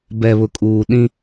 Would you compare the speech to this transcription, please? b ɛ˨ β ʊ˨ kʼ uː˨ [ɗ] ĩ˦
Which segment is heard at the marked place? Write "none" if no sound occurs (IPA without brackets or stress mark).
ɗ